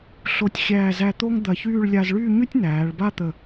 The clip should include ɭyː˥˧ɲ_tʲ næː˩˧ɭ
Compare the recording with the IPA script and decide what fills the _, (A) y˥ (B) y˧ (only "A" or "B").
A